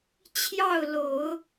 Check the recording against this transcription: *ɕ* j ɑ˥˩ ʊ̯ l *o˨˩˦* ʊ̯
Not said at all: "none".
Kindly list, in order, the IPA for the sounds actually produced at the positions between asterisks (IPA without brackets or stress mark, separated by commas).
t͡ɕʰ, o˨˩˦